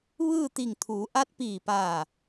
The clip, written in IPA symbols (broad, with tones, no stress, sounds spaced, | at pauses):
ʋ ɯː˥˨ t̪ i˧˩ ŋ t̪ʰ uː˩˧ ʔ a˧˥ t̚ p iː˧˩ p aː˧˩